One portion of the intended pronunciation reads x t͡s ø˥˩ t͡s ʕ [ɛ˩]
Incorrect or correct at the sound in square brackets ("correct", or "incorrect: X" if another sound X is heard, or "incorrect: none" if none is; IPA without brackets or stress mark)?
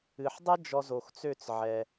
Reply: correct